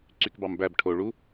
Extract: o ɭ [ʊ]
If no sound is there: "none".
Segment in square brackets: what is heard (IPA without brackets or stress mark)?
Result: u